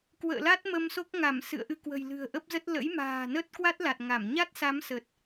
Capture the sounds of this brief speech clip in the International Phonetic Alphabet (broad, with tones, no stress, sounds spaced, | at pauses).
k w ə̰ː˧˨ l a˦˥ t̚ m ə˧ m s o˦˥ k̚ ŋ a˧˩ m s ɨ̰˧˨ ə̯ ʔ ɨ˧ k w ə̤˨˩ j l ɨ̤˨˩ ə̯ ʔ ə˦˥ p̚ z ə˦˥ t̚ l ə̰˧˥ j m a̤ː˨˩ n ə˦˥ t̚ k w a˦˥ t̚ l a˨˩ t̚ ŋ a˧˩ m ɲ a˦˥ t̚ s a˨˦ m s ə˨˩ t̚